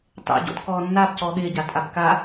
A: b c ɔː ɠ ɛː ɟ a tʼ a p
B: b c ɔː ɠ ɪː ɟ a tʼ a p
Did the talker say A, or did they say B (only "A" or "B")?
B